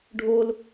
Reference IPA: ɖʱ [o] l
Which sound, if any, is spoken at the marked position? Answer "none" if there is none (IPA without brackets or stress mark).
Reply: o